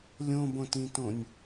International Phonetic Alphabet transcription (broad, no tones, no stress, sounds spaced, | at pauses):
lʲ õ b õ t ĩ t õ nʲ